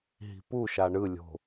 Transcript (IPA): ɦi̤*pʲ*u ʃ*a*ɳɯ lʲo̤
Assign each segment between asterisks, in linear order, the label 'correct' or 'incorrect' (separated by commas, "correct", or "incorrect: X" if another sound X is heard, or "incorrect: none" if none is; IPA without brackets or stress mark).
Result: incorrect: p, correct